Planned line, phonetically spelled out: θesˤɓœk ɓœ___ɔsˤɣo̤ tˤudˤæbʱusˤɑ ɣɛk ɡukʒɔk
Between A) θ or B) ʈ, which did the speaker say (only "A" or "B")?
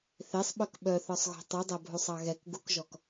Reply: A